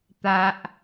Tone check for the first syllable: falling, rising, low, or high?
high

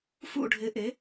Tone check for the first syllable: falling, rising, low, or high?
falling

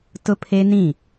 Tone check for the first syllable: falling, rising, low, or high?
high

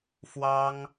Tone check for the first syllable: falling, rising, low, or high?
high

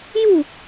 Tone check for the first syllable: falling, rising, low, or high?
falling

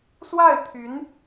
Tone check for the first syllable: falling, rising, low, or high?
falling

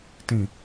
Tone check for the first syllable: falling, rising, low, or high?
low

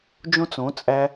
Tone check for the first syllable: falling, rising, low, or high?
high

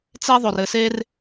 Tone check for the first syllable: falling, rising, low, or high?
high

